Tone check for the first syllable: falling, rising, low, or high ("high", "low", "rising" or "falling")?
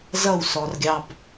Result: falling